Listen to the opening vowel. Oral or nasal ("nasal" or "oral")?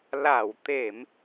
oral